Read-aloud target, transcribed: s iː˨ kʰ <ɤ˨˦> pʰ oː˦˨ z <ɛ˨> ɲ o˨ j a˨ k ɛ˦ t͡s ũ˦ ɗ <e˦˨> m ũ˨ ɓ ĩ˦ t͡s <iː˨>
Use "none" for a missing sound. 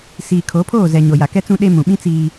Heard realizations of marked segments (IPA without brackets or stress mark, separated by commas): o˨˦, ɛ˨, e˦, iː˦